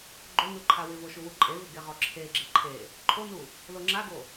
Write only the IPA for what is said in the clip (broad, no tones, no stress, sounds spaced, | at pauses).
ɡ͡ǃ o n u ǃʰ a w ɪ v o ʃ u w u ǃʼ e v ɪ ɡ e ʁ ɔ ǁʰ e ɡ͡ǁ ɪ ǃʰ e | ǃʰ o n u | l o ŋ͡ǁ a ɡ o